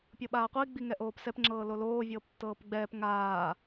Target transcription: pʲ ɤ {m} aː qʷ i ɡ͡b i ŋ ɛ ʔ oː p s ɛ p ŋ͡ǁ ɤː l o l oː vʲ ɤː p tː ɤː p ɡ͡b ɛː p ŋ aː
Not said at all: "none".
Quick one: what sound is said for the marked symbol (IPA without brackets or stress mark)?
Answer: ɓ